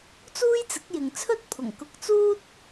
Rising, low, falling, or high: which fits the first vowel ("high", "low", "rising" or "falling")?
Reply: high